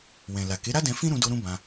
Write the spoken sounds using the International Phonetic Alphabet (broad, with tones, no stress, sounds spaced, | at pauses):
w ɛ̃˨ l a˨ k e˨˦ ɾ a˦ d ɛ̃˧ f ĩ˦ ɾ ũ˧ d o˧ ɾ ũ˦ b ã˧